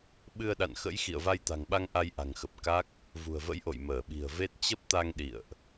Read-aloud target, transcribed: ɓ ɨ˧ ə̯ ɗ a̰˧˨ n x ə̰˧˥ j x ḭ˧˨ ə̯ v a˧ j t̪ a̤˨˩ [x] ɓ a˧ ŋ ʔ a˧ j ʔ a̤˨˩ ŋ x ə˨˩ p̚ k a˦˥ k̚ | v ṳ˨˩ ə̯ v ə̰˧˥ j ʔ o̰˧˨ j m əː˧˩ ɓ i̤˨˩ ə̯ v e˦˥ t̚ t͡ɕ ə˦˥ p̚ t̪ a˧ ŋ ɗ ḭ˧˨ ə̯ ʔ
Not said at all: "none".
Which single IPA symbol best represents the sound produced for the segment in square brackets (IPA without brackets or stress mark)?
ŋ